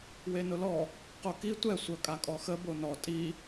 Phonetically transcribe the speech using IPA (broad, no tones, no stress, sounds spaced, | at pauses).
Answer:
w e n ʊ l ɔ | q o k i tʷ ɛ sʷ œ kʼ a kʼ ɔ x ə b o n ɔ tʼ i